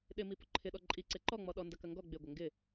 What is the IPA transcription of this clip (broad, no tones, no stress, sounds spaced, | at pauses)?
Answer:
ɗ ɪ m i p ʊ ǃʰ ɪ ɗ ɔ ǃʼ i ǀ e ǃ ɔ ŋ͡m ɔ ɗ ɔ n d ɐ k ɐ ŋ ɡ ɔ ɡ͡b ɪ ɡʷ ɐ ŋ ɡ ɪ